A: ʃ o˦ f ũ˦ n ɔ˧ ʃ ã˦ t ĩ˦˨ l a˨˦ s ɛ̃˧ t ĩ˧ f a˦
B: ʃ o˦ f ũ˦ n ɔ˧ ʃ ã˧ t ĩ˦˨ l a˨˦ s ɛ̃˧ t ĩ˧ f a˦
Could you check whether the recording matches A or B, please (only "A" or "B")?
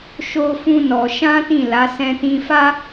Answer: A